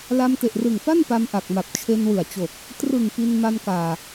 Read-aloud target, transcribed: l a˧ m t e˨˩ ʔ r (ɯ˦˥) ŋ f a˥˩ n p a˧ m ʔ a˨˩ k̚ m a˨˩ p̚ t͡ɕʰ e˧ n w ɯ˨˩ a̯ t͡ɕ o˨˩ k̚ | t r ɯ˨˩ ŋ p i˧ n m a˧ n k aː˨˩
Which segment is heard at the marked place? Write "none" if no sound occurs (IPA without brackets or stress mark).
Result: ɯ˨˩